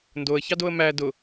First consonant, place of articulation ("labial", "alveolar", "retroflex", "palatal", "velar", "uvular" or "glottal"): alveolar